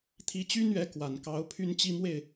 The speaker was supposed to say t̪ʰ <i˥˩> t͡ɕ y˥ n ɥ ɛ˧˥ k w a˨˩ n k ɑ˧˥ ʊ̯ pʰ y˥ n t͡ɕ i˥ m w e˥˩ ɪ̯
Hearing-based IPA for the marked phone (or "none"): i˧˥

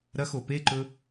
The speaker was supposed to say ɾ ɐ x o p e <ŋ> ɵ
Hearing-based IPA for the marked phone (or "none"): ǃ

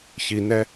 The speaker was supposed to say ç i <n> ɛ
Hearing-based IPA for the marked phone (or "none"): n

